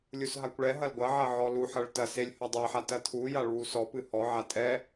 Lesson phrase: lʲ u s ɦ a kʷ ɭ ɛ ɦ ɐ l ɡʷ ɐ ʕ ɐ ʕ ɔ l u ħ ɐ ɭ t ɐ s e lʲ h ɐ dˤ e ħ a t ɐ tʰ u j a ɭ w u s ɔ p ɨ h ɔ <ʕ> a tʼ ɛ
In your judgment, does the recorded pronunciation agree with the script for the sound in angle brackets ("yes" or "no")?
yes